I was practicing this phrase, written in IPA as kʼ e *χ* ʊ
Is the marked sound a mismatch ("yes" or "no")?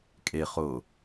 no